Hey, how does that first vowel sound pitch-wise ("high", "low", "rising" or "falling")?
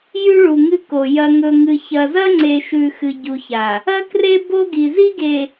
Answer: high